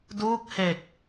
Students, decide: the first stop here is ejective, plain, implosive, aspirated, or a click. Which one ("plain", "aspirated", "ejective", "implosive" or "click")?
plain